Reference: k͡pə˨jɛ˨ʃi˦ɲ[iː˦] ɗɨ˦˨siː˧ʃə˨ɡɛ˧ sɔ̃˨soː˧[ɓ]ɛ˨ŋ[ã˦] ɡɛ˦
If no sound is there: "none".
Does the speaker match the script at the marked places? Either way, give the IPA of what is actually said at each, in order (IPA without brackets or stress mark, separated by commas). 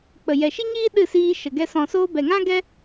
iː˦, b, ã˦